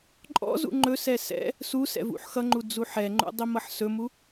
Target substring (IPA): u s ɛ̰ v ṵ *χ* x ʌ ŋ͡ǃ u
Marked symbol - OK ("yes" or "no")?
no